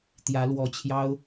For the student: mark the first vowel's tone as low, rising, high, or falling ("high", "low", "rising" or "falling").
rising